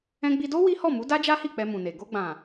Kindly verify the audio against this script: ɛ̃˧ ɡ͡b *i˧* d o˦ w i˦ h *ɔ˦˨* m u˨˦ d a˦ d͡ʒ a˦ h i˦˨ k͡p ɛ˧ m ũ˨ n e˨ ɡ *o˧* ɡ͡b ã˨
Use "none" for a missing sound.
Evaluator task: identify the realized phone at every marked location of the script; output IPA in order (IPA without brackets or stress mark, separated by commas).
i˧, ɔ˦˨, o˧